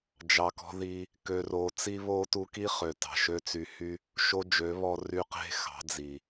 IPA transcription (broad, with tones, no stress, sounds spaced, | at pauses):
d͡ʒ ɑ˨ k ɔ̤˧ ð i˧ | k ø˨ r oː˨ t͡s i˧ β oː˧ t u˧ k i˦ χ ø˨ t ɑ̤˨ ʃ ø˦ t͡s y˧ h y˦ | ʃ o˦ d͡ʒ ø˨˦ β ɔ˧ r y˧ q e̤˦ x ɑ̤˨˦ d͡z i˨